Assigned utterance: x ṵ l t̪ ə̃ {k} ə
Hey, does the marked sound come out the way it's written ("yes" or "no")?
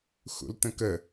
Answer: yes